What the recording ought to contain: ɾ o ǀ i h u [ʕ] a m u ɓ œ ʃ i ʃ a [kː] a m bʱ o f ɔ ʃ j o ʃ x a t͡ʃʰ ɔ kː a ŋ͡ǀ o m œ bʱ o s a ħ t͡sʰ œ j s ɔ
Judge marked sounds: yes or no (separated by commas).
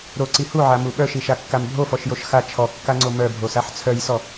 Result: yes, yes